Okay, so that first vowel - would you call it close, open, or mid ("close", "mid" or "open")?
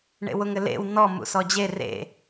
mid